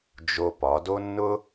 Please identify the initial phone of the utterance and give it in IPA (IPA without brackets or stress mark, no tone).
d͡ʒ